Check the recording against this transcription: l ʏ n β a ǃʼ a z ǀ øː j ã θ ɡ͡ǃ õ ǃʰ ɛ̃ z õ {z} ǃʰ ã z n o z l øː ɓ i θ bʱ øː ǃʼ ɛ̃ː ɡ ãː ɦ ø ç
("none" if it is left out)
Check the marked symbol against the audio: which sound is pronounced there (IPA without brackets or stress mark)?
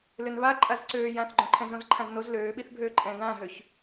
z